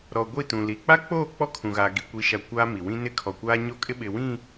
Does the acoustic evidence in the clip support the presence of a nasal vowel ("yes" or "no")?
yes